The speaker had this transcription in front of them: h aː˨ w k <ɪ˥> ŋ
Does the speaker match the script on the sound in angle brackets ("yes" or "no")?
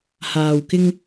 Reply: no